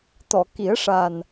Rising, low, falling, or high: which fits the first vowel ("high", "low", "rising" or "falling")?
low